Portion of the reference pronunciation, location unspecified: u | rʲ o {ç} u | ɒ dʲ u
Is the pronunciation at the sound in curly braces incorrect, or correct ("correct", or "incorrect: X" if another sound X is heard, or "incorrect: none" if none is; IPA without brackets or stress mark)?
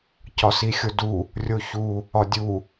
correct